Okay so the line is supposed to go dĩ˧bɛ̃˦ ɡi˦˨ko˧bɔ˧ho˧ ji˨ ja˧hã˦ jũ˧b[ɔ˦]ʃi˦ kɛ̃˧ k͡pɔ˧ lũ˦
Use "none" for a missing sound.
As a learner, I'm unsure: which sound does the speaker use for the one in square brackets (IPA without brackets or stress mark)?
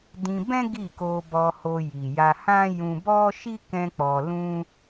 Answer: ɔ˦